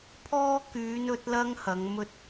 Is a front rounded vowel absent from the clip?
no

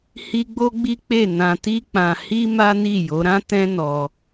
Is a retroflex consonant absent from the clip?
yes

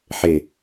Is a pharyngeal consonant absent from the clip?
no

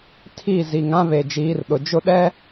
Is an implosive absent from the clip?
no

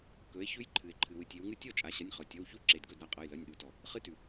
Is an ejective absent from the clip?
no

